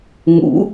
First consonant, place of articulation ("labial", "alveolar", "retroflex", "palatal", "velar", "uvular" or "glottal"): velar